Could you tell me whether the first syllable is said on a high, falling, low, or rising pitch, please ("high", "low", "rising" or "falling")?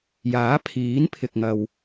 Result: rising